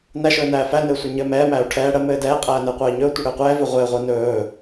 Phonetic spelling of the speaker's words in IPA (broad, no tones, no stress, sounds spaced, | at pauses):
n æ ʃ ɵː n æː f æ n ɘː sʷ ɘ ɲ ɘː m ɛː m æː u̯ ʈʰ ɛː ɽ ə m ɘː d ɛː qʼ æː n əː qʷ əː i̯ ɲ ɵː tʷ ə ɽ ɘː qʷ ɛː v ø ʁʷ ɘː ʁʷ əː n ɵː